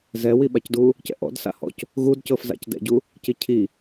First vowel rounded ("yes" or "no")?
no